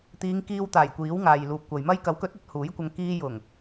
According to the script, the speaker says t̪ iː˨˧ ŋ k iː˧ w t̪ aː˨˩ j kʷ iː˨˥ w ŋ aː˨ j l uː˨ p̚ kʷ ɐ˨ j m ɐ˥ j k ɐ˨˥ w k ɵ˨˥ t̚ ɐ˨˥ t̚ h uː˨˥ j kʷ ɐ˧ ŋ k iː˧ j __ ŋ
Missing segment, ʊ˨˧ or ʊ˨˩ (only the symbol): ʊ˨˩